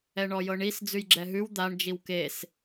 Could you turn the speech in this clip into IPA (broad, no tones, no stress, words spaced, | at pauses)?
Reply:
ɛɳɔjɤɳis d͡zʉjɡ͡ǁɛɦʉw d̪aɳ d͡ʒiwkes